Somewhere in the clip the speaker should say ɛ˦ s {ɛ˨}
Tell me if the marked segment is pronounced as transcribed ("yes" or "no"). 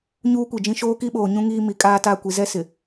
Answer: no